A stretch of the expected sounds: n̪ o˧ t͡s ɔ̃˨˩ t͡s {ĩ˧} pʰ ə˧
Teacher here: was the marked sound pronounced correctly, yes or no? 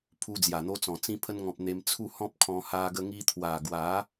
yes